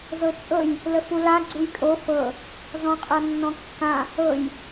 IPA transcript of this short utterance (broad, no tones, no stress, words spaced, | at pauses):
zɤt͡ʃʼɤj | ləfula ɡ͡ǀujkʼo fɤ | zɔ̃qʼɤnːɔ̃kːã | ɤj